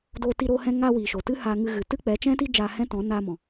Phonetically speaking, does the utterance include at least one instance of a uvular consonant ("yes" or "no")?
no